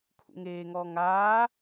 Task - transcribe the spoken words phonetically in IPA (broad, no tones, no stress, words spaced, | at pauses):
kʰṵŋeːŋɔː ŋaː